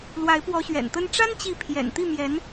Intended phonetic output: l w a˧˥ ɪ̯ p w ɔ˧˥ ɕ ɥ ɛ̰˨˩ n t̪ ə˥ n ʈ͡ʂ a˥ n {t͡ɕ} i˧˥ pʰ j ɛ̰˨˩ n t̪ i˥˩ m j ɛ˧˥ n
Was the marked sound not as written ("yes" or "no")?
no